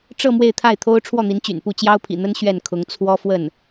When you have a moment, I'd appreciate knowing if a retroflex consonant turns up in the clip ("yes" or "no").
yes